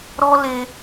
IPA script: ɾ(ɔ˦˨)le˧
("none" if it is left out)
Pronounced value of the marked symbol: ɔ˦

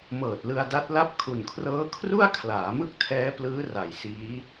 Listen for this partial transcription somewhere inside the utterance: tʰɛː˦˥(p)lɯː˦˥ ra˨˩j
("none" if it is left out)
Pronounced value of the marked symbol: p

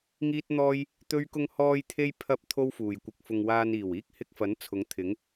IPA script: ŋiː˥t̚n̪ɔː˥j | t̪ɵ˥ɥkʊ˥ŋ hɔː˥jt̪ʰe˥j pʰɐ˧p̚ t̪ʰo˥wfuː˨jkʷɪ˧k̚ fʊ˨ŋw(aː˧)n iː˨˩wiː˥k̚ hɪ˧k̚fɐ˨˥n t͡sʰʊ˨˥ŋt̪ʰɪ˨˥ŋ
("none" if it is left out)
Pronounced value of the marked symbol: aː˧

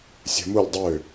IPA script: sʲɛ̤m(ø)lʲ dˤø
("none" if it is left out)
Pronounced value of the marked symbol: u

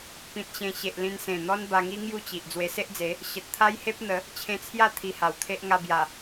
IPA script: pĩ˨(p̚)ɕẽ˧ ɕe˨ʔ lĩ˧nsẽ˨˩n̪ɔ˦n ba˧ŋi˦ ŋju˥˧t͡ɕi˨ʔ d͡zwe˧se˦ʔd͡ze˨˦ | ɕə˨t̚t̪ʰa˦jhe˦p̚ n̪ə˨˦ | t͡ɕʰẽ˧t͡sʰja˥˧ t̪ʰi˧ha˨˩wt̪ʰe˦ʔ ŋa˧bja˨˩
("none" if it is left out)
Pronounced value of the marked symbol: t̚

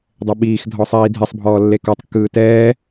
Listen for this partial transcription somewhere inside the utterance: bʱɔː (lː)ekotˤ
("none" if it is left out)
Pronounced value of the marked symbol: lː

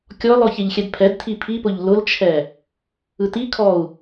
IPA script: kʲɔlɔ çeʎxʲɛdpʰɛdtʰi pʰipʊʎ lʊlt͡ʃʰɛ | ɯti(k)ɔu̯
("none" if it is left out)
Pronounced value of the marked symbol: kʰ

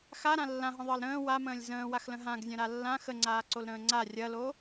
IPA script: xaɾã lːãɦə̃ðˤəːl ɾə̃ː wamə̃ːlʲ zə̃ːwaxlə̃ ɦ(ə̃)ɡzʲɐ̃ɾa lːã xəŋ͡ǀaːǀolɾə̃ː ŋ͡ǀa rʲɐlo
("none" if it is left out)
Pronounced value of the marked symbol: ã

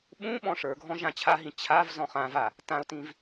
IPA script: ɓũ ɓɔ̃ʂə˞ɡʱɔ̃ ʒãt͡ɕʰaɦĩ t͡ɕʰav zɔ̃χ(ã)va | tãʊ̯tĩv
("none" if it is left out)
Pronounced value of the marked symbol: ã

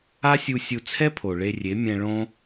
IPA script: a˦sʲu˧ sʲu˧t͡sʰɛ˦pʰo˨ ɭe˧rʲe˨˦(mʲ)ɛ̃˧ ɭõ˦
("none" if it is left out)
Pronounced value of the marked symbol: mʲ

